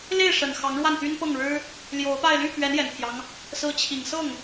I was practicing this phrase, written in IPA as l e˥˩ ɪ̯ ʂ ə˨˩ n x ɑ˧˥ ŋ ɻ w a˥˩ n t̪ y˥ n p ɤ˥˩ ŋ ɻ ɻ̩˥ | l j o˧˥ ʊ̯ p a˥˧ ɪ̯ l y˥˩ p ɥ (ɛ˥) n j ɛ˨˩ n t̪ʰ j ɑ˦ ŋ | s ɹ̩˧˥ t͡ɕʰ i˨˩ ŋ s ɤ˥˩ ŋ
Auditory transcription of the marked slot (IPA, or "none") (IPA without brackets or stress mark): ɛ˧˥